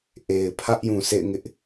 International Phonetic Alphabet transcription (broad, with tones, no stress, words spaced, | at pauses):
ʔe˨ɪ̯pʰä˦ʔjũ˨ sḛ˦˨ɪ̯ŋɪ˦ʔ